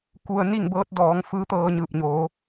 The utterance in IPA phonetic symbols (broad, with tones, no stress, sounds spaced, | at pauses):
k u˧ ə̯ n i˥˨ ŋ b ɤː˧˥ t̚ d ɔː˩˧ ŋ f ɯː˧˥ t̪ ɤː˧ ɲ ɯː˧˩ p̚ ɲ oː˩˧